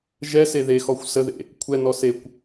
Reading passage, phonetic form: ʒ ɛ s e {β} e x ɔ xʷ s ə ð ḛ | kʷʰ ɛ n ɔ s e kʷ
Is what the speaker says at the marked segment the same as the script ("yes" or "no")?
no